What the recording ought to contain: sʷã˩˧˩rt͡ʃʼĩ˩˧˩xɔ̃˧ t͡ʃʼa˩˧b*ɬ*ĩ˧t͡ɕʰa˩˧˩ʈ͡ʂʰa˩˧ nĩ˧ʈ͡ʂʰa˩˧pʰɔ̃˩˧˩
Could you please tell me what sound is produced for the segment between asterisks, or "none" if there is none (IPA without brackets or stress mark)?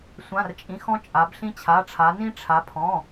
ɬ